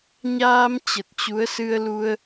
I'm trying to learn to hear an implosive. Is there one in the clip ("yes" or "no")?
no